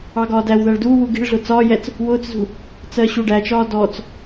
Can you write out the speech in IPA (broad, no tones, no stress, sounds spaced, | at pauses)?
ɑ ɡ ɒː d æ w ð æ ɭ d uː w u ɡ i̤ ɭ ɮ ʊ t͡s ɒː j ɛ t͡s | w ʊː t͡s z ṳ | t͡s ɜ ɕ u ɖ æ t͡ʃ ɒː d ɔ t͡s